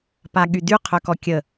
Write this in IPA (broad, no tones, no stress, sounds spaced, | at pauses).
p a ɠ y d y qʰ œ k ɔ kʲ ə